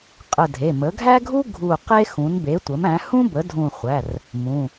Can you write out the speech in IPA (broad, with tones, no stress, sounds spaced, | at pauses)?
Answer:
qʼ ə˧˩ dʱ e˩˧˩ m ə˩˥ ɡʱ æ˥ ɡʱ u˥ ɡʱ u˧˩ q e˥ x ũ˩˥ n b e˩˥ tʷ ə˩˥ m æ̃˩˥ h ũ˥ b ə˩˥ dʱ ũ˧˩ χʷ æ˩˧˩ r | m ũ˩˧˩